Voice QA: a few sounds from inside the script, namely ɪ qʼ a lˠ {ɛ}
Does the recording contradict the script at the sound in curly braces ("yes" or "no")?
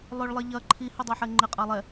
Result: no